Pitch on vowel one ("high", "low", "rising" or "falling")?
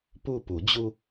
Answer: falling